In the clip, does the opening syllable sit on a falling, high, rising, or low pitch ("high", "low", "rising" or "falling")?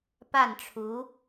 falling